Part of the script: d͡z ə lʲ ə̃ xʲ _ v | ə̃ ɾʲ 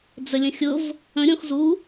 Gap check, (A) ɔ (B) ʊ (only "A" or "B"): B